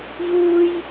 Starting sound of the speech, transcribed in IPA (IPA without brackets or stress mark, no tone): j